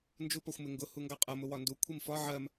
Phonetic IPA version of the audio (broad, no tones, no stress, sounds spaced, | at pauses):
n d͡ʒ u p ɒ xʷ m ɪ ŋ ɡ ʊ h u ŋ ɡ ɑ qʼ ʌ m ʊ w ɒ n d u kʷʰ i m f ɒ ʕ ɜ m